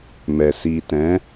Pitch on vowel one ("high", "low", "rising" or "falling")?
low